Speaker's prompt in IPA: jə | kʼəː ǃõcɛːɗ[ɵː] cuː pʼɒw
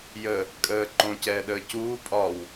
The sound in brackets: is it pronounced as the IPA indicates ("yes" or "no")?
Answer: no